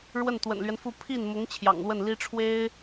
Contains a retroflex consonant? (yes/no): yes